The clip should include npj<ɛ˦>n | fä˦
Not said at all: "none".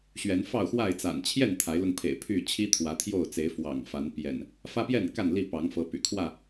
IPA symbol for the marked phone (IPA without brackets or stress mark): ɛ̰˨˩